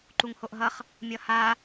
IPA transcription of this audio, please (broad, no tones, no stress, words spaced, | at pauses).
ǃuŋhoʔɦʌχ | mʲʌha